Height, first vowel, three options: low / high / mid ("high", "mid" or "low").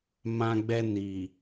low